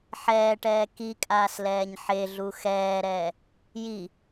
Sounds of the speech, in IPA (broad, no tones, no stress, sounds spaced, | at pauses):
ħ ɛː ʈ ɛː k i kʼ aː s l ɛː ɲ ħ e ɮ u x ɛː ɾ ɛː | j i